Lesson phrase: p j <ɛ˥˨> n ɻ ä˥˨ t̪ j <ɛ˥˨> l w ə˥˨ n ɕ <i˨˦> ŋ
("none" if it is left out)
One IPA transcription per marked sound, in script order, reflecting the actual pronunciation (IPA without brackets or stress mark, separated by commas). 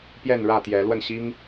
ɛ˥˨, ɛ˨˦, i˦